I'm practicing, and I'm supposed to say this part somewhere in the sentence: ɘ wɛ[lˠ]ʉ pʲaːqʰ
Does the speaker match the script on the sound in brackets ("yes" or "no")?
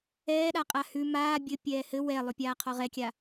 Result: yes